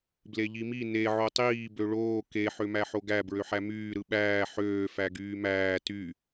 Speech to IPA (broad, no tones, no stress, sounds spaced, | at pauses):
b l e ʎ i m i n e ʕ o tˤ iː b ø ɭ oː k e ħ ø m æ ħ o ɡ æ b ɹ ø ħ æ m yː ɾ ɯ ɓ æː ħ øː f æ ɡ yː m æː t y